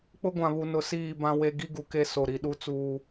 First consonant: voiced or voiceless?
voiceless